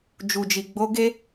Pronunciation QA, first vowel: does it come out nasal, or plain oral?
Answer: oral